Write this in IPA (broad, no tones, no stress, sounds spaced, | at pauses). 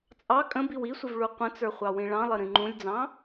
t͡sʼ ɑ kʼ ə̃ b i w i sʷ ə v ɭ u qʷ ə̃ t͡s ə˞ χʷ ɑ w ĩ ɭ ɑ̃ lˠ ə ɾ ĩ ŋ͡ǃ ũ lʲ d͡z ɑ̃